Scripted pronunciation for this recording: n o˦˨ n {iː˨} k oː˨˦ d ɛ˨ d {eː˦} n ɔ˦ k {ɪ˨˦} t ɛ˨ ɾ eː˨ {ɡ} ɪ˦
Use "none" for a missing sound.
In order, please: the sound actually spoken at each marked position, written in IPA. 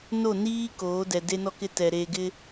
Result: iː˦, e˦, ɪ˦, ɡ

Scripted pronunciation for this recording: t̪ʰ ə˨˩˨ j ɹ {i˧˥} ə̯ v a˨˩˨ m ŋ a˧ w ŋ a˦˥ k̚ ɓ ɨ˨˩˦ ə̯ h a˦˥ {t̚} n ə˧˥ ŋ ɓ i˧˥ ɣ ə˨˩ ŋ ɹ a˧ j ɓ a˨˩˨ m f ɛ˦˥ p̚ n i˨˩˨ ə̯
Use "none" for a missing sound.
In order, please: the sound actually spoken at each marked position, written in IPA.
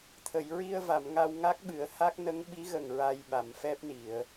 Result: i˧, k̚

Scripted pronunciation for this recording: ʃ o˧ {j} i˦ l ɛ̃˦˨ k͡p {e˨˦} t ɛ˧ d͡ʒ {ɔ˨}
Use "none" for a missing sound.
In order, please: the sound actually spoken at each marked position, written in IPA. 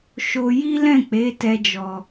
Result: j, e˨˦, ɔ˨

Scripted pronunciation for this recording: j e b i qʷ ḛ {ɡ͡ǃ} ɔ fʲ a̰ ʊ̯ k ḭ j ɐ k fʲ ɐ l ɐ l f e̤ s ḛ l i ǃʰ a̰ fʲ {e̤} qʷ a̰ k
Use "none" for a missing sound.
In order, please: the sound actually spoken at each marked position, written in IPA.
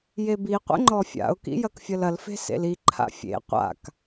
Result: ŋ͡ǃ, ḛ

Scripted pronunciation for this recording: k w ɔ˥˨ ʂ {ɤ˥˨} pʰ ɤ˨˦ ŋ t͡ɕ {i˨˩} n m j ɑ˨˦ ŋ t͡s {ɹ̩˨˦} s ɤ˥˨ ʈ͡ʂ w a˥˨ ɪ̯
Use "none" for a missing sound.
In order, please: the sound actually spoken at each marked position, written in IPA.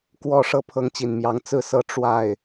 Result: ɤ˥˨, i˨˩, ɹ̩˥˨

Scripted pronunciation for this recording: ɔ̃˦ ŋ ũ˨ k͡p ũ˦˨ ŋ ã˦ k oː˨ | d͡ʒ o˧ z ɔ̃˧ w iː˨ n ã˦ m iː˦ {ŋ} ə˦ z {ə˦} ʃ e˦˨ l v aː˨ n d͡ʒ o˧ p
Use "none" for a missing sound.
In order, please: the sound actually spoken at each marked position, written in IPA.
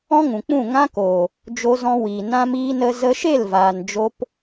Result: n, ə˧

